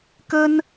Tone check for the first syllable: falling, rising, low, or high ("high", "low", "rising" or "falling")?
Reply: high